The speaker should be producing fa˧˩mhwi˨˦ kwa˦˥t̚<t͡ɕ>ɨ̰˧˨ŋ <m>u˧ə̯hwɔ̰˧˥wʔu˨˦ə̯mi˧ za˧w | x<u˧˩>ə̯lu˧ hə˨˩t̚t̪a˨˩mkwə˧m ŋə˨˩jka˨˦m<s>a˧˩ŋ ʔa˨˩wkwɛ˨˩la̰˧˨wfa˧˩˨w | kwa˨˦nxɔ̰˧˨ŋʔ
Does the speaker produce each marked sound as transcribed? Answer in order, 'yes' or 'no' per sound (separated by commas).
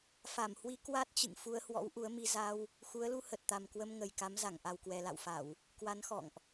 yes, no, no, no